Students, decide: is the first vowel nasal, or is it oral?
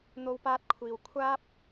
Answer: oral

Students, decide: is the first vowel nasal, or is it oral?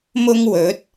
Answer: oral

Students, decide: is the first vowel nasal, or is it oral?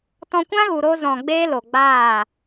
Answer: nasal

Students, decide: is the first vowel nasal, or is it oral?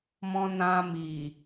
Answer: nasal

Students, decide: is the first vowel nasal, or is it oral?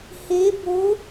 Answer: oral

